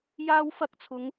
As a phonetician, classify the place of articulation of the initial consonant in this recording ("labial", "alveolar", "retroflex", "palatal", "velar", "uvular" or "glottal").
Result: palatal